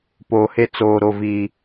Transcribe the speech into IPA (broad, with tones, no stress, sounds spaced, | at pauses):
p oː˨ h e˦ t͡s oː˨ ɾ o˨ v iː˨